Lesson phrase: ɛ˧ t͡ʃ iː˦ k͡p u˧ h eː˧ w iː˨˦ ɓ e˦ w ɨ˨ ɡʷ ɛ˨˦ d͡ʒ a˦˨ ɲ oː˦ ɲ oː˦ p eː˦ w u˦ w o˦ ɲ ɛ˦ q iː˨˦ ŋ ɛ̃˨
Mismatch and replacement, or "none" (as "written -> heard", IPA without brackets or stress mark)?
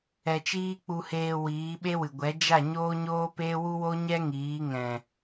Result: q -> ŋ